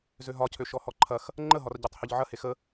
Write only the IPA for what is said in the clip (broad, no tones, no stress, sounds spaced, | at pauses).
z ø ɦ ɒ cʰ ø ʃ ɔ h ɔ ǃʰ ɐ x | ŋ͡ǃ ə ɦ ɒ r ɟ ø tˤ h ø ʎ ʕ ɐ h e x ə